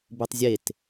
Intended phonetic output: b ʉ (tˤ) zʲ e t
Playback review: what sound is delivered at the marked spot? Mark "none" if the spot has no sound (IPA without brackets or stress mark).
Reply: tˤ